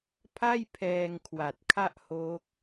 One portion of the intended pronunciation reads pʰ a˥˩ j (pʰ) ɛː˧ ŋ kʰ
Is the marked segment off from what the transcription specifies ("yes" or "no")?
no